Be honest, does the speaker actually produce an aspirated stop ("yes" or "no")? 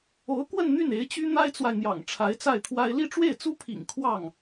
yes